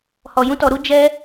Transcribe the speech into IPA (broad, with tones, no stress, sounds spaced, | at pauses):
h ɔ˧ j ũ˦ t ɔ˧ ɾ u˦ d͡ʒ ɛ˦